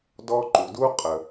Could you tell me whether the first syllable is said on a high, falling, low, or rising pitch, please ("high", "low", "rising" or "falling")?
high